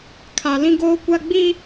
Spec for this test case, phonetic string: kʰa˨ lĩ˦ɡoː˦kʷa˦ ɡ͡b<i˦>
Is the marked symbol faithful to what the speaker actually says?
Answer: yes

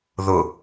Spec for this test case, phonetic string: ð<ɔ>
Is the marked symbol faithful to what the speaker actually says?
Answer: no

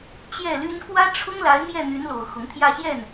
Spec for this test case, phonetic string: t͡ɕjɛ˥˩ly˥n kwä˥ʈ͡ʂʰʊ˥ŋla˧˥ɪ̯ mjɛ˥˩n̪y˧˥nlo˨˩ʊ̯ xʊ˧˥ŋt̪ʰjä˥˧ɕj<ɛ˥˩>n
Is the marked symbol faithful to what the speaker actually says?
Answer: yes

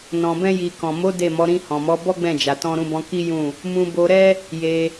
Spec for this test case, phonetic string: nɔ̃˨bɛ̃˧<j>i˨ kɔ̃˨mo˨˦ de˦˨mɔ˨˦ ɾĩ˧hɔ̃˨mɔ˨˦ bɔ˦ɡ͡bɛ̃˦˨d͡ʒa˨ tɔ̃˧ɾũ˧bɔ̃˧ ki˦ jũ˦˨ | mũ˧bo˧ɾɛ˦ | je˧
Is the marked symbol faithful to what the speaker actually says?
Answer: yes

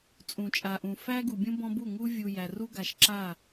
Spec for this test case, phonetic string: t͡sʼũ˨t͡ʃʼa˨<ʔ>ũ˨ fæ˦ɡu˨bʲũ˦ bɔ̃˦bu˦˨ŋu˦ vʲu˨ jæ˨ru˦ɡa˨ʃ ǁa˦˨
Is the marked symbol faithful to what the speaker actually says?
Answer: yes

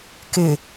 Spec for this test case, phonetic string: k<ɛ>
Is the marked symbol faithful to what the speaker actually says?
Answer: no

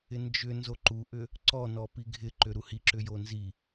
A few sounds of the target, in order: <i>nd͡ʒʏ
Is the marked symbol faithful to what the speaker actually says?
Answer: no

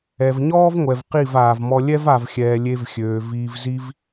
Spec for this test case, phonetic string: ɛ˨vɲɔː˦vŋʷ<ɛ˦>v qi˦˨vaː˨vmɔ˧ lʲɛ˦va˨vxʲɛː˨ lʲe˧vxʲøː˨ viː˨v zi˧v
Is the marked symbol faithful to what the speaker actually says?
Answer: no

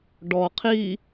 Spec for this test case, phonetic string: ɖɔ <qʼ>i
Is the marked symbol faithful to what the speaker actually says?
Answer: no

